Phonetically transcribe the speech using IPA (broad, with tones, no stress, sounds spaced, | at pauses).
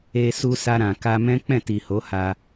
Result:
e˧ s u˧ s a˧ ɾ ã˨ k a˧ m ɛ̃˦ k͡p ɛ̃˦˨ t i˨ h o˨˦ h a˧